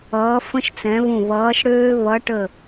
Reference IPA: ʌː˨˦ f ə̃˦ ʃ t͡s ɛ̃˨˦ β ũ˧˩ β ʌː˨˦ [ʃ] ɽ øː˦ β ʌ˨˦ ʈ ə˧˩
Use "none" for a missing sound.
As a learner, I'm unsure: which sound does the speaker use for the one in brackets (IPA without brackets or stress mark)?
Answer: ʃ